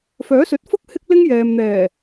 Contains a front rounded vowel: yes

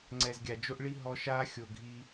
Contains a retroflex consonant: yes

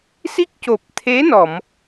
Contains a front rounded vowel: no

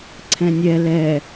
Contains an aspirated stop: yes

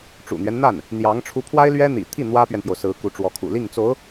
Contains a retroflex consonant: yes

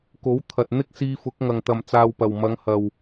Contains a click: no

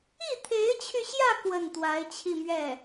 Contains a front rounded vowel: yes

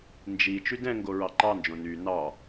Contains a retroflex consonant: no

